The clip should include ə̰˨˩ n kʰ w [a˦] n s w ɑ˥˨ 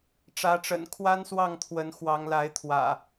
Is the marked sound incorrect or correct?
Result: correct